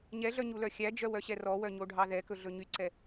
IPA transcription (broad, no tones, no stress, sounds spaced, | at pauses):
ɲ ɛ ɮ œ ɲ u l œ xʲ æ d͡ʒ œ w œ ɕ ɛ r ɔ w œ ɲ o ɖʱ ɑ ð ɛ k ɵ ɮ ɵ ɲ y ǀ ɛ